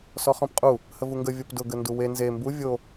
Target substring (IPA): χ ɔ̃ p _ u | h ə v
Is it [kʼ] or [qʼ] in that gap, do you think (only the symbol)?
qʼ